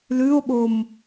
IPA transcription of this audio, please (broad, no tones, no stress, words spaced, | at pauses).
lʉo̯ɓom